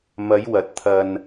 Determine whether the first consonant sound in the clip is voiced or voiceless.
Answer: voiced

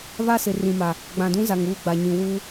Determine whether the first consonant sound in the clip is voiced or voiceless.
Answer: voiced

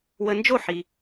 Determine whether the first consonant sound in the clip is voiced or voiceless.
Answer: voiced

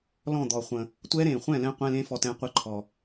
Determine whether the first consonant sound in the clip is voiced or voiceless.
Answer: voiced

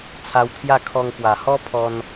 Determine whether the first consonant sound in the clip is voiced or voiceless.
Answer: voiceless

